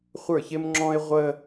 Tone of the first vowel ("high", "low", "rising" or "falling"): falling